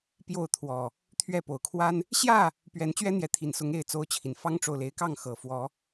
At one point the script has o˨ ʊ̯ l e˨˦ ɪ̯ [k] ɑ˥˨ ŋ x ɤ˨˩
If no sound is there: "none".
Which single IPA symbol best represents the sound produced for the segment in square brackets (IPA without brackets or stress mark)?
k